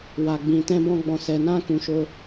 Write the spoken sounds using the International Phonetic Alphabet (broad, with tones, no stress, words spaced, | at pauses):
wa˨ɡ͡bĩ˨tɛ̃˧bɔ̃˧ ɡ͡bɔ̃˨sɛ˨nã˧kũ˨ ʃo˧